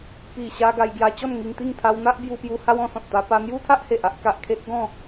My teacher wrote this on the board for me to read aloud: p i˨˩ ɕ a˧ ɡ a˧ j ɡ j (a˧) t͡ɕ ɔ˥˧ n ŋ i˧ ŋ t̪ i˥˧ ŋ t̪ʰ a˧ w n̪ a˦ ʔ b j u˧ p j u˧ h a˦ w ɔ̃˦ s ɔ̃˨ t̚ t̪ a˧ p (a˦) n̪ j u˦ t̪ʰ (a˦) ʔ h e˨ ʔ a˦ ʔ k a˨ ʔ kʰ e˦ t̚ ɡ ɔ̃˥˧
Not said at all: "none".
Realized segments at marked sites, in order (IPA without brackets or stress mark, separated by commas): a˧, a˧, a˦